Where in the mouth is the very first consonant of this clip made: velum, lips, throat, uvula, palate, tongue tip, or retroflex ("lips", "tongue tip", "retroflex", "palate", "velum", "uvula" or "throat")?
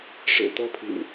retroflex